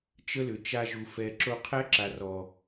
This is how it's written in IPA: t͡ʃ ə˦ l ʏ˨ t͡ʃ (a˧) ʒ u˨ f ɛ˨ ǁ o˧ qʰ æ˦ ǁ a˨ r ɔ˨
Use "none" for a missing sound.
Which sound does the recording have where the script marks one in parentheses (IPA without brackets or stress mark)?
a˧